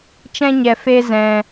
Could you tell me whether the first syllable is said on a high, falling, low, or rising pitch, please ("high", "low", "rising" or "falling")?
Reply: high